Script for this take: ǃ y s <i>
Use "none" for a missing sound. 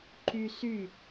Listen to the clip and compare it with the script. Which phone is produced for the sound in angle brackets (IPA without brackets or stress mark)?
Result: y